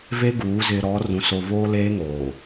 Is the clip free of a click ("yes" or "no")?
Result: yes